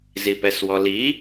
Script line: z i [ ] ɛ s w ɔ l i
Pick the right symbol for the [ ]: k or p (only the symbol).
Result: p